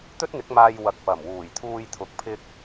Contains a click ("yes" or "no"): no